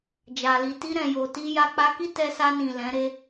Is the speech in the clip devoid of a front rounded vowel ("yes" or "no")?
yes